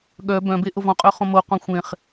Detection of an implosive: present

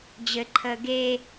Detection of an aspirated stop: present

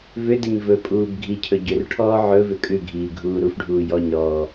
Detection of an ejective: present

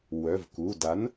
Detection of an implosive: absent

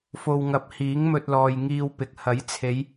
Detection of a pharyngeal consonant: absent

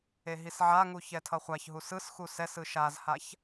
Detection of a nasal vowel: absent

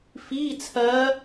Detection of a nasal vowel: absent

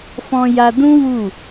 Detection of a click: absent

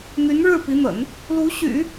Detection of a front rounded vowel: present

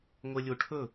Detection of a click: absent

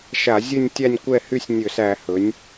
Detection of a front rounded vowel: present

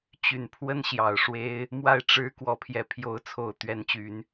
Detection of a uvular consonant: absent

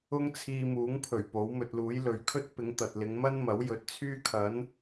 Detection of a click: absent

